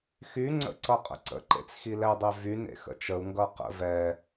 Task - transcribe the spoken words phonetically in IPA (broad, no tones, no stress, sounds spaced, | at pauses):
x y ŋ͡ǀ ə̰ ǀ ʌ qʼ ə̰ ǀ ə̰ ǃ ḛ t͡s x i l ɛ dˤ e v y n ḛ x ə̰ t͡ʃ ə u̯ ŋ ɡ ʌ q ə̰ v ɛ